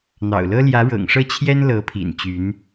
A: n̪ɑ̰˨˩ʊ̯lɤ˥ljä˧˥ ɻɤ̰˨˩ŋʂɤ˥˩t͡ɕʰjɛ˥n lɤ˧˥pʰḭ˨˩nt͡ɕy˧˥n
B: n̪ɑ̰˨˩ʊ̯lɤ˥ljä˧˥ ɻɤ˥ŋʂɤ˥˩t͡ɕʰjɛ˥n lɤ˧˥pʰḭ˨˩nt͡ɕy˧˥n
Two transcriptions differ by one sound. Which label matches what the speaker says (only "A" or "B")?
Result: A